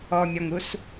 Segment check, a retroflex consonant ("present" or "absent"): absent